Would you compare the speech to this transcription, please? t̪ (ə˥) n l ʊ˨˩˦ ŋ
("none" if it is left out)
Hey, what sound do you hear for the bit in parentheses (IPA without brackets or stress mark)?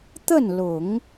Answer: ə˥˩